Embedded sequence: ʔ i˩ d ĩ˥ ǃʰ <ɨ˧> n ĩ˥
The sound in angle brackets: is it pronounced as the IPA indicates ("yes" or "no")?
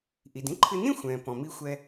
yes